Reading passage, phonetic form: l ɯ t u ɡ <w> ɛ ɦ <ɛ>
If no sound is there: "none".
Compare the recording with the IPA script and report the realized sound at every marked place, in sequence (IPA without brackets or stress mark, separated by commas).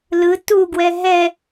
w, ɛ